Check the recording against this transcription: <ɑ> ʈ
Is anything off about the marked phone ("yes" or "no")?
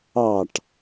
no